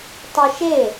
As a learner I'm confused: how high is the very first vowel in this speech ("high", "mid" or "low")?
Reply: mid